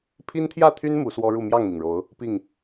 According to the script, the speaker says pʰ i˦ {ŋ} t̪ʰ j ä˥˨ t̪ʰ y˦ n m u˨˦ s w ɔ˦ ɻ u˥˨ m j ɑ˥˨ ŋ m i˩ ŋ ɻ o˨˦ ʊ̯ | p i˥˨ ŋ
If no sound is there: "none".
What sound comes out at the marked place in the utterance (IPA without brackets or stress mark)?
n